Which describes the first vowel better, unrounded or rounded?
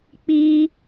unrounded